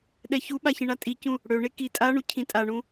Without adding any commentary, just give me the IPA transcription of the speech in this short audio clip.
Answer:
ɗɛçuɓa çĩɳatʼicũ | ɽøɳe ki tʼaɳu cʰĩtʼaɳũ

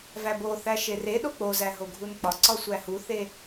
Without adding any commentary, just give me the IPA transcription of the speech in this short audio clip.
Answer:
væbo θæʃere ɗok͡pozæ ɦoɡʱunk͡pɒ ǀɒsʷæhuθe

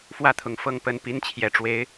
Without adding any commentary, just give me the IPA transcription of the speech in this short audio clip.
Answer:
fwä˥˩t̪ʰʊ˨˩ŋ fɤ˥˩ŋpə˧˥n pi˧˥nt͡ɕʰjɛ˨˩ʈ͡ʂwe˧˥ɪ̯

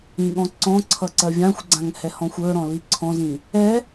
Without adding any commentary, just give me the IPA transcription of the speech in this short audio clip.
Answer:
ĩɠɔ̃ǀɔ̃ǀʰʌ ǀɜvʲãxʷɡ͡ǀãŋ hɛhɔ̃xʷə˞ɾɔ̃ liǀʰɔ̃zĩ | ɛ

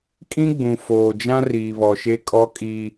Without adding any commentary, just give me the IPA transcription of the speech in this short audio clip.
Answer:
kʼĩ˦ɡ͡bũ˨foː˨d͡ʒã˦ riː˨βɔ˨ʃe˦ kʼɔ˦kʼi˦

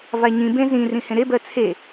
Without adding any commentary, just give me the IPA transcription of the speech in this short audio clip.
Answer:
vaɲĩbẽ zĩ rĩhẽɾebɜ t͡sʰe

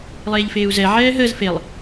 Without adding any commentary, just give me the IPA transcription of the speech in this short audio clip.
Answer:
lˠeːʎfeːu̯zɛ ʕɛːɦəːz felˠ

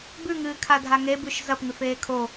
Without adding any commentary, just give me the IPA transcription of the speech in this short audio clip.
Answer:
bʉŋɨːkʰadʱa ŋebʉʃ zɐpŋʉf eːkʰo

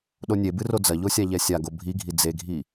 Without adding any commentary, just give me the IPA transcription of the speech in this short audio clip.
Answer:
ɗonʲebɨ rod͡zɐʎo sʲaʎɛsʲaɡo bʱiɡʱi d͡zeɡʱi

